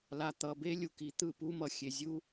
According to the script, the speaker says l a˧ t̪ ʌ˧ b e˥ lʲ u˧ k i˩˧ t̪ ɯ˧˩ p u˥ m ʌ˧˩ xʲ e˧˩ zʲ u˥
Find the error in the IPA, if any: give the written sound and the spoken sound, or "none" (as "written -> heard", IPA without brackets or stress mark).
none